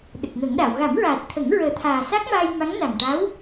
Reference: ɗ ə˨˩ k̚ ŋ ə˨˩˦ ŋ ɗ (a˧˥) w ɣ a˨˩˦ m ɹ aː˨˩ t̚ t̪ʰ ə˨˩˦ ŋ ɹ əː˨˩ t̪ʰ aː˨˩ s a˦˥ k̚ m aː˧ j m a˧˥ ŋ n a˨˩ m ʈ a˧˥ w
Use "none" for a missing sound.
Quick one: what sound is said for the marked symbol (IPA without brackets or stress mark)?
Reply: a˨˩˨